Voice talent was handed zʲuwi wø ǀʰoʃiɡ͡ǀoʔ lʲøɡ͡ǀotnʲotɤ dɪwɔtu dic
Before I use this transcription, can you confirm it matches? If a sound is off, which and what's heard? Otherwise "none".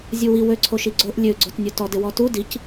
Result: ɤ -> ɔ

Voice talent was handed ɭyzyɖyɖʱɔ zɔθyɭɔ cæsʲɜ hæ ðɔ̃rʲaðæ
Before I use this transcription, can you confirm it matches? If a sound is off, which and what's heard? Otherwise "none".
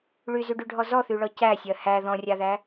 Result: none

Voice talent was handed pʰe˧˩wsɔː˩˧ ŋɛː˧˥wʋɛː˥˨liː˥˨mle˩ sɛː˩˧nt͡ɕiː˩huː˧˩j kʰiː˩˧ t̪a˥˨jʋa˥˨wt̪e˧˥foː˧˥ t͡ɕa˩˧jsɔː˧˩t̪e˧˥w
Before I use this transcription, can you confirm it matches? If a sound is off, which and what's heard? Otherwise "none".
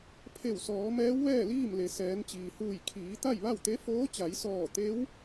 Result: ŋ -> m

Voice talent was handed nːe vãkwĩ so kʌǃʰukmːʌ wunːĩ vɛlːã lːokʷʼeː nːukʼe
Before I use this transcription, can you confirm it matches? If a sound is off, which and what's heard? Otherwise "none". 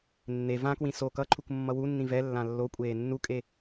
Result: none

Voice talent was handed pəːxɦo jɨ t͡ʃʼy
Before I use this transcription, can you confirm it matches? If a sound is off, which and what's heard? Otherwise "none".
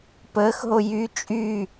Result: ɨ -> y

